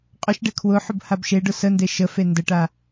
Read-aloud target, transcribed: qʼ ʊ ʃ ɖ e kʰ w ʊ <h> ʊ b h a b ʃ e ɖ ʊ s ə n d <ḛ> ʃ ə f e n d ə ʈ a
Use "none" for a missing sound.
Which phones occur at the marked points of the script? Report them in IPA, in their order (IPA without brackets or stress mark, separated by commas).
ħ, e